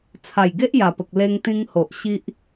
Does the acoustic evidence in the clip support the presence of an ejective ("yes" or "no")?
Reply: no